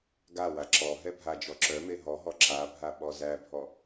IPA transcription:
ɡ a w a ǁ ɔ ɦ ɛ bʱ a d͡ʒ ɔ ǁ œ m e ɦ ɔ ɦ ɔ ǁ a bʱ a ɓ ɔ z æ bʱ ɔ

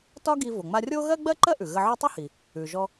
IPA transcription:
t ɒ˥ ɡ i˧ v o˩ ŋ͡m a˧ rʲ o˥ ɣ ɜ˥ ɡ͡b ɜ˥ ǃ ɜ˥ ʔ ʉ˩ ɣ ə˧ ʕ o˥ tˤ ʉ˥ h i˩ | ʉ˩ ʒ ɔ˧

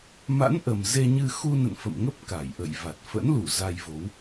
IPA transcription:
m a̰˧˥ n ʔ ə˨˩ m z e˧ ɲ ɨ˧ x u˧ n ə̰˧˨ n f ə̰˧˨ m ŋ ə˦˥ p̚ k a˧˩ j ʔ ə̰˧˨ j v a˨˩ t̚ f ə̰˧˥ n l u˧˩ z a˧ j v o˨˦ w

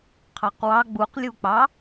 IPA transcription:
qʰ ɑ q w ɑ ɡ͡b u q lʲ u k͡p ɑ

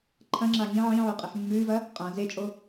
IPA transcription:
ǃʰ ɐ̃ ŋ͡ǁ a ŋ ĩ ʕ ĩ ʕ o qʼ e ħ mː ʉː v ɐ | qʼ ã z e t͡ʃʼ o

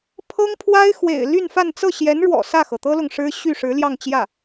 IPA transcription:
pʰ ɤ˥ ŋ pʰ w a˥ ɪ̯ x w ḛ˨˩ ɪ̯ l y˥˧ n f a˥˧ n t͡s ɤ˥˩ ɕ j ɛ˧˥ n ɻ w ɔ̰˨˩ s ä˥˩ x ɤ˩ t̪ ɤ˥ l ʊ˨ ŋ ʂ ɻ̩˥ ɕ y˥˩ ʂ ɻ̩˧˥ l j ɑ˥˧ ŋ t͡ɕ j ä˥˩

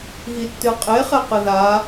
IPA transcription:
ɣ i tː ɨ qʼ e χ ɛ q ɨ ð a

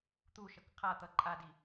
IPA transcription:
t̪ u ʃ ʌ k qʰ a t̪ ʌ ǃʼ a d i

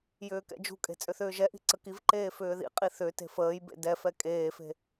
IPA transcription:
j ʏː k ɛ̰ d͡ʒ ṳ kʼ e̤ t͡sʼ ʏ θ ʏː ʒ ɛ ʔ i̤ ǀ ə k i v ǃ eː f ʏː ð ḭ qʼ i θ ʏ t e̤ f əː j b ḛ d ɛ f ɛ kʼ eː f e̤

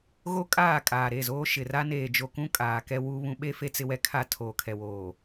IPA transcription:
ɣ o˦ kʼ aː˦˨ kʼ aː˨ ɾ e˦˨ z oː˦ ʃ ɪ˨ r a˦ n eː˨ d͡ʒ o˨ k ũ˦ kʼ aː˨ k ɛ˦ w u˦ β ũ˦ ɓ e˦ f e˦ t͡s ɪ˦ w ɛ˦ kʰ a˦˨ tʰ oː˨ kʰ ɛ˨ w oː˨

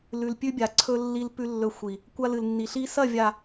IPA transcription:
l ʉ˨ l pʲ ʉ˦ bʲ a˨ ǀʰ ɵ˦ lː i˦ l p ʉ˦ lː ɵ˦˨ xʷ i˨ | kʷ a˦ l ɨ˨ l nː i˨ ɬ i˦ s ɐ˦˨ vʲ a˨

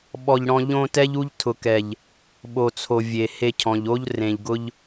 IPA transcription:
ɓ ɔ˨ ʎ ɽ ɔ̃˧ ʎ õ˧ t ɛ˦ ʎ u˦ ʎ tʰ ʊ˨ k ɛ˨ ʎ | ɓ o˨ t͡sʰ o˨ vʲ e˨ h e˧ cʰ ɔ̃˨ ʎ o˦ ʎ r ẽ˨ ʎ ɡ ʊ˧ ʎ

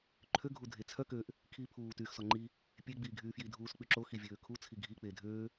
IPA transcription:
ǃʰ ø ɡʱ u dʱ e t͡sʰ œ k ø ʔ | kʰ iː pʰ uː t yː x s ɔ ŋ͡ǃ i | pʲ e ɡ͡b iː ɡʱ yː f j i dʱ uː s k͡p y ǁ o x i vʲ øː kʰ u t͡sʰ i ɡʱ i k͡p eː dʱ øː

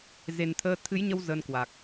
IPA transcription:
z e˨˩ n t̪ʰ əː˧ t̪ʰ ɨ˨˦ j ɲ ə˧ w z ə˧ n k w a˨˩ k̚

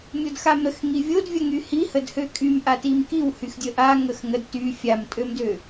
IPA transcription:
mʲ o d x a m ɾ ə x ŋ i vʲ o d vʲ ə ŋ y h i h ə d h ø kʼ y m ʔ a t i m k i w h y x dʲ ə ʔ a ŋ ə x ŋ ə d t y fʲ a m tʼ ø m d ø

